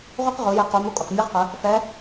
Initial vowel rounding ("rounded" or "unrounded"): rounded